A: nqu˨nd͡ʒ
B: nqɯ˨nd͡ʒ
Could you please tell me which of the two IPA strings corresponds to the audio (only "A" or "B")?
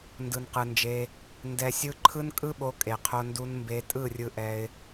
B